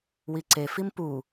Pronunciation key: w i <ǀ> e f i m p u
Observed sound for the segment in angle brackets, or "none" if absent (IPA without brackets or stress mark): ǀ